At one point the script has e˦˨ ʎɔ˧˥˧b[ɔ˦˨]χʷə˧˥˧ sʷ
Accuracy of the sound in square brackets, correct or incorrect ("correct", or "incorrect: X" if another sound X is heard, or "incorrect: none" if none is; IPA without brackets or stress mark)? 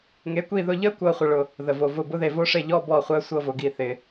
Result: correct